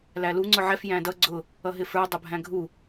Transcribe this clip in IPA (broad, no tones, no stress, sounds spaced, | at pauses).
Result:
l æ l u ŋ͡ǀ ʊ ʕ ɛ f j æ̃ d ʌ ɡ͡ǀ ʊ | ʌ ɦ ɪ f ə˞ dˤ ʊ bʱ æ̃ ɡʱ u